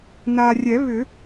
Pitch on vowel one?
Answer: low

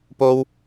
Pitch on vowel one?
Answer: high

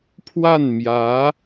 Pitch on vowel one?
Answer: falling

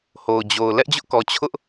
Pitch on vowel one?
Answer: low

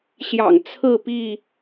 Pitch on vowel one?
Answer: low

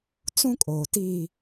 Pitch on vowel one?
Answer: high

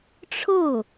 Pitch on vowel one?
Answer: falling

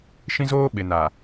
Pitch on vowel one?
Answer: high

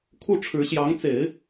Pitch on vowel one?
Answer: falling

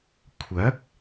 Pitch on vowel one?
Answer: rising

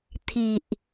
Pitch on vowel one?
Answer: low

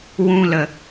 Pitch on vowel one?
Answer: high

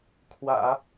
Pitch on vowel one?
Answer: low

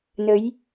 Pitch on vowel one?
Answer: rising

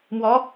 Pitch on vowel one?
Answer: rising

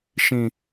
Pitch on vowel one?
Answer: low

